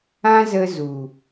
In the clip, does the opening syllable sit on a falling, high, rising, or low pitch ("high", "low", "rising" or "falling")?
high